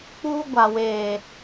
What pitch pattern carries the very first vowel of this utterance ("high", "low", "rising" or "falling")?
high